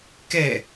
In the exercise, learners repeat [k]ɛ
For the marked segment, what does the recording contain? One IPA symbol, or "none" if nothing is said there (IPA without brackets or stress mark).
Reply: k